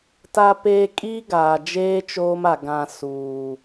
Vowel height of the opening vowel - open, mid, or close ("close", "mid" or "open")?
open